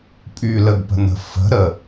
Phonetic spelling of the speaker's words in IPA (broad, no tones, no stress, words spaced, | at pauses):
pʼyləɡpə̤nə̤ fə̤ɾə